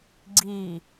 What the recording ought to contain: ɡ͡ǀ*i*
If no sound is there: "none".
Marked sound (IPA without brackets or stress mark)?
i